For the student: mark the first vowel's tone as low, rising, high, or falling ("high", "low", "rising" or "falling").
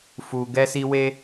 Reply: low